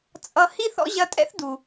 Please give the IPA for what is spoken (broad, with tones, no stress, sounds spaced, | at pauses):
t͡sʼ ʌ˧ h i˦ θ ɔ̰˦ ʑ ɐ˧ tʼ ɛ̰˦ θ d u˨